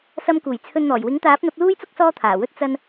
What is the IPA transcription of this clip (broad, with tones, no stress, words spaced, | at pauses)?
sɐ˧mkuː˨˩jt͡sʰɵ˧nn̪ɔː˨˩j wɪ˨˥ŋt̪aː˨˥p̚n̪ɐ˨˥p̚ luː˥jt͡sʊ˥k̚ sɔː˥t̪ʰaː˨˩wɵ˥t̚ t͡sɐ˧n